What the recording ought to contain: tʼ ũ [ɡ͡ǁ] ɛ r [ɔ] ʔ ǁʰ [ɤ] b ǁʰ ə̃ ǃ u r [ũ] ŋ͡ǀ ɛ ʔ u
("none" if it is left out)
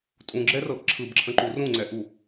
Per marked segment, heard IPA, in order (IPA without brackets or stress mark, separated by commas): ɡ͡ǁ, ɤ, ɯ, ũ